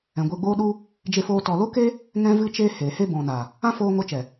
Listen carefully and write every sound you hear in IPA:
ɛ̃˨ ɡʷ e˧ ɡ͡b oː˦ ɗ u˦ | d͡ʒ e˧ f oː˧ t ɔ˨ l o˦ k e˦ | ŋ ɛ̃˦ v ɨ˦ t͡ʃ eː˦ h eː˨ h e˧ b ɔ̃˨ n a˨ | ã˦ f oː˧ ŋ o˧ t͡ʃ ɛ˨

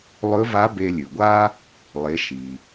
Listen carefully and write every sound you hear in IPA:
lˠ ɵ˧˥ v a˧˥ b e˧ lʲ ʉ˩ ɡʷ a˥ | lˠ e˩˧ ʃ i˩

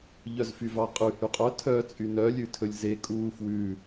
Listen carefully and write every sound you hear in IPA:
ʎ œ z f y v ɑ qʼ ʉ h y qʼ œ tʰ œ t͡sʼ y n œ lʲ ʉ tʰ ɵ lʲ z e kʼ uː f w ʉ

